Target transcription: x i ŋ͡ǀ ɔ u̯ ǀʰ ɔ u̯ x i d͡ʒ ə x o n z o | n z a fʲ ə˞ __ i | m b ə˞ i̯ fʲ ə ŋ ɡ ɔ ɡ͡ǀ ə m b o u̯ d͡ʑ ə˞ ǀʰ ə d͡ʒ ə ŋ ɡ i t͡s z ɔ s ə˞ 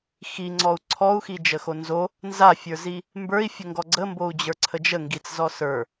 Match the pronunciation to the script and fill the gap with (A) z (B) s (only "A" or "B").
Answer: A